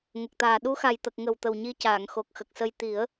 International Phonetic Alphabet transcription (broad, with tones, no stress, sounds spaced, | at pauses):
ŋ ə˨˩ k̚ t̪ aː˨˩ ɗ u˧˥ x a˨˩ j t̪ ə˨˩ k̚ ŋ ə˨˩ w t̪ ə˨˩ w ɲ i˧˥ c aː˨˩˨ ŋ x o˨˩ k̚ x ə˨˩ k̚ s ə˧ j t̪ i˨˩˦ ə̯